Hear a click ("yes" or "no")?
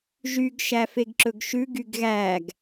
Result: yes